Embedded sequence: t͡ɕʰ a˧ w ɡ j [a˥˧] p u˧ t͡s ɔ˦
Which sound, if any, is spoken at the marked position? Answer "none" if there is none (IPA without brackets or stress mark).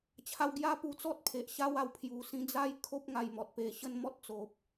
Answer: a˦